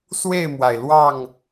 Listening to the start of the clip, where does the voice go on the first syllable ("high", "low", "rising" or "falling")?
falling